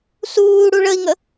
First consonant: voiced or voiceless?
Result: voiceless